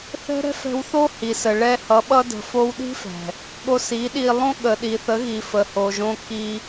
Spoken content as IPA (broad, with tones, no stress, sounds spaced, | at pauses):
θ ɛ̤˦ ɾ ɛ̤˦ f ɛ̤˧ w θ o˦ h i˨ s ə˨ ɭ ɛ˧ h ʌ˨˦ ɓ ʌ˦ d ə̤˧ f o˦ w ɗ i̤˦ f ɛ̤˨ | ɠ o˧ s i˨˦ ɗ i˧ lˠ õ˦ ɠ ə˨ ɗ i˨ θ ə˨˦ ɣ i˨ f ə˨ h o˨ ʒ õ˧ k i˧